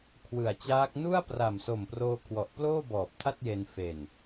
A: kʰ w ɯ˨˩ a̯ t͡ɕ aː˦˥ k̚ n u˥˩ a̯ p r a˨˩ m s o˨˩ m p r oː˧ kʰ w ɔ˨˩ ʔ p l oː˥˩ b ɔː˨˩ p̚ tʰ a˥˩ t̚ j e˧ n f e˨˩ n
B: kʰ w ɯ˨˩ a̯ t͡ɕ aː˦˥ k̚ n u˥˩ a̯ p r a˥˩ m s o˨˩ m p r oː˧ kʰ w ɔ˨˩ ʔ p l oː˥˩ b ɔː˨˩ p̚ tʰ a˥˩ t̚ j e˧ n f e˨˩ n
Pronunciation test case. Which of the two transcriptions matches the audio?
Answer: A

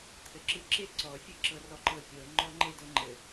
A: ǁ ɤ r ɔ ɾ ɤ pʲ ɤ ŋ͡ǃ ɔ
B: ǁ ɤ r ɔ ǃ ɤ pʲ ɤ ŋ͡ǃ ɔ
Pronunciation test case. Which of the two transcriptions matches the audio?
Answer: B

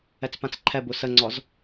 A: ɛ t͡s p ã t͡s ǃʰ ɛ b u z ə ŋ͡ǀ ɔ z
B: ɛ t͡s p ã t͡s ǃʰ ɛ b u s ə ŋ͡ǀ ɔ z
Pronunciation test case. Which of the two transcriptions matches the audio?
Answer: B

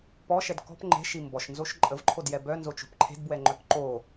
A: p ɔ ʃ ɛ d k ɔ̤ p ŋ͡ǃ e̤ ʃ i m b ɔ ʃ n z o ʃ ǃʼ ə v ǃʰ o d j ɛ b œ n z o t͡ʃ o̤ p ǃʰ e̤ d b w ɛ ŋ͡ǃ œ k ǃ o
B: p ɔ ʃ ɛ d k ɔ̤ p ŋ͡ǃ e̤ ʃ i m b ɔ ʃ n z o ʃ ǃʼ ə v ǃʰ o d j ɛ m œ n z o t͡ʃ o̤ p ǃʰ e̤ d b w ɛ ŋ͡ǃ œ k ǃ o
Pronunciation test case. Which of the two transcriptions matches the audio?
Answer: A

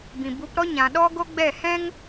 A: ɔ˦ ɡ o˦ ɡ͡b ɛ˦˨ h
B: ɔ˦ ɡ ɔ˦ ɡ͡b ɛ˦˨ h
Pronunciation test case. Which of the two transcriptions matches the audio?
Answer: A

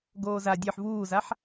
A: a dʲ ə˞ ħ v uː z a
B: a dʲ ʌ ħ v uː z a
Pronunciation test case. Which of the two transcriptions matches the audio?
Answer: A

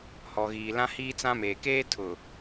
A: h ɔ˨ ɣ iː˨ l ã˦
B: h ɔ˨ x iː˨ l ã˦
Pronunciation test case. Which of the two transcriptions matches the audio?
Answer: A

